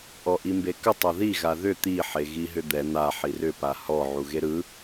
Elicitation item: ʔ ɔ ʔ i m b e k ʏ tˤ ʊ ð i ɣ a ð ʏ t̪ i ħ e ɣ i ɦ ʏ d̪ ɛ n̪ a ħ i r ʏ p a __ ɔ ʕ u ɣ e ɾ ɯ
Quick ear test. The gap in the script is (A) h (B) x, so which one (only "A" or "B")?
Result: A